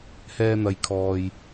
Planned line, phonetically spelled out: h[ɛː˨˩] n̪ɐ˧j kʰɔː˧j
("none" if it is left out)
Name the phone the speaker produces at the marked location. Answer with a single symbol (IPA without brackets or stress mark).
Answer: ɛː˧